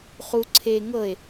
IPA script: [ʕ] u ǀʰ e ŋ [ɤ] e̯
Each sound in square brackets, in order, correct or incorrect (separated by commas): incorrect, correct